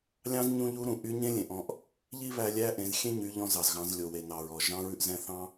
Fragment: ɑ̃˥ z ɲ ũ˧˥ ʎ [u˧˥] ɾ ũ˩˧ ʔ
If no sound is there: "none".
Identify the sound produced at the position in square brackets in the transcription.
u˧˥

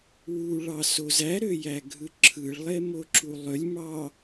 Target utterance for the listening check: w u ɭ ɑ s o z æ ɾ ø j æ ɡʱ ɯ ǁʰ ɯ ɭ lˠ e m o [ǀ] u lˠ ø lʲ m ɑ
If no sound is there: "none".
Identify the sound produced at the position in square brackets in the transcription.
ǁ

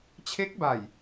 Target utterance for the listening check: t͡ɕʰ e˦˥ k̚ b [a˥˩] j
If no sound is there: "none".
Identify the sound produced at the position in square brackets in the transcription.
a˨˩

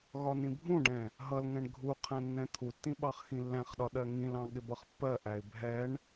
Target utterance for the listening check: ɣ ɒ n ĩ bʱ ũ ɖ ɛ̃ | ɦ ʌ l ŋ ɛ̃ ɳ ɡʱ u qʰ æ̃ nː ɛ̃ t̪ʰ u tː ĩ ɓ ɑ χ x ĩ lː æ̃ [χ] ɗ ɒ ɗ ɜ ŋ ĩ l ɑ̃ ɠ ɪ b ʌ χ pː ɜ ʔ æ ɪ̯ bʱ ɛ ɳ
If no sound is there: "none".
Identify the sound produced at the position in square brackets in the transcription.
χ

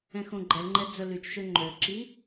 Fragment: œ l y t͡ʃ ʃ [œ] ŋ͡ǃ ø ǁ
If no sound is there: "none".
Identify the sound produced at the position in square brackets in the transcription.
ø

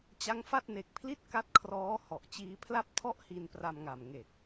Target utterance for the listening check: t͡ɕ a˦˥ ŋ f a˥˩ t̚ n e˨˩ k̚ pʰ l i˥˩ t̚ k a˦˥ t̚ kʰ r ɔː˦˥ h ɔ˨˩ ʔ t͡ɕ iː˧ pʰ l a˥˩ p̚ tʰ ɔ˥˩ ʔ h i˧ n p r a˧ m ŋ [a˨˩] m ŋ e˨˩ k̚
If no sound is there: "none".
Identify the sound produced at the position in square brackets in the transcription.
a˨˩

